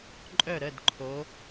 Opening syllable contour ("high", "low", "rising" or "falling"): falling